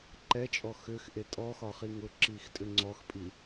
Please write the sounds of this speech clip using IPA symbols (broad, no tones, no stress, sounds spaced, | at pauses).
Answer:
ǃ ɛ t͡ʃʼ ɔ x ʏ x ʔ e tʼ ɔ x ɒ χ i ŋ ʊ ǁ i x tʼ ʏ ŋ͡ǀ ɔ x pʼ i